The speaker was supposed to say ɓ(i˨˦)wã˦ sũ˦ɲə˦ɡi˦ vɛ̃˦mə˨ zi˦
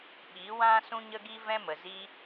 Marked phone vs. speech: correct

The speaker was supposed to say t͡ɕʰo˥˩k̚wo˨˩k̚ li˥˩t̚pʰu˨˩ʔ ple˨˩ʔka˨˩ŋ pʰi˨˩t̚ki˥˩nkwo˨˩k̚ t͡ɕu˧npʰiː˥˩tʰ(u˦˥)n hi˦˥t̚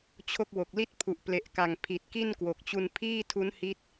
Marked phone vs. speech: correct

